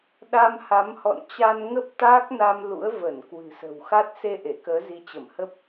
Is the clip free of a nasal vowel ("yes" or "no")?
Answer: yes